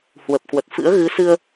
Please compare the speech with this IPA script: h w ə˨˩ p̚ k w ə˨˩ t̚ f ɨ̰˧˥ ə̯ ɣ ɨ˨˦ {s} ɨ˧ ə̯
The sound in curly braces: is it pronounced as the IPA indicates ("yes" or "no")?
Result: yes